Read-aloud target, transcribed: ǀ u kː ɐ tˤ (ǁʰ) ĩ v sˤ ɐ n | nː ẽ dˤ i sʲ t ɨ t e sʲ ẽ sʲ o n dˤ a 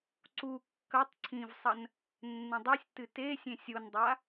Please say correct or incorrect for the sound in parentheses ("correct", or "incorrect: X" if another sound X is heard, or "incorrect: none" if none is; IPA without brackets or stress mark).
incorrect: ǀʰ